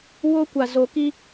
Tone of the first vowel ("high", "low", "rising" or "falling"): high